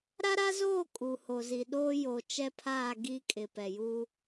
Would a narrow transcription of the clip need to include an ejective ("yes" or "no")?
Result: yes